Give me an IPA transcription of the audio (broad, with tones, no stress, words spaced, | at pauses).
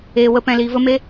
eː˧wə˦ pɛ̃˧liː˧və˦me˦